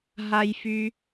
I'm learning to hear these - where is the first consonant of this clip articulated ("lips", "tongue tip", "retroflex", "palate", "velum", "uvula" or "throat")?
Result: throat